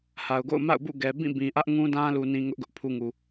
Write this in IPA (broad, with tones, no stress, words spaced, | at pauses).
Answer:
ha˨ʊ̯ɡo̰˦˨ʊ̯ ma̰˦˨ʊ̯bṵ˦˨ ɡɛ˨ bĩ˦˨ bĩ˨ʔä˦ʔŋũ˦dã˦ lu˦nĩ˦ ŋʊ˦ʔɡʊ˦ʔ pʰu˦ŋu˨